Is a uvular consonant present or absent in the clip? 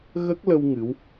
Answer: absent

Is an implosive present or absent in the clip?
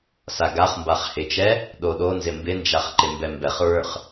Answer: present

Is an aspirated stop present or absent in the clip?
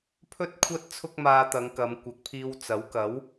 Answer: present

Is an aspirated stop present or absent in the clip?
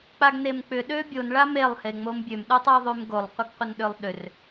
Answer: absent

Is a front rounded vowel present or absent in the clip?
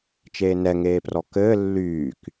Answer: present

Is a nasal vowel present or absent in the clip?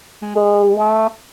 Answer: present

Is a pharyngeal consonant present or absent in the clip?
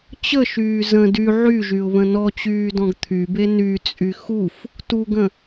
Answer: present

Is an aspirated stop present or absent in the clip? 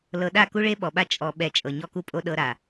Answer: absent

